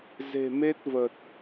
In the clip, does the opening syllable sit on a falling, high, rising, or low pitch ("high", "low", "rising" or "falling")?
low